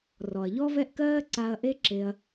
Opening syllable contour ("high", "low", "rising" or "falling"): low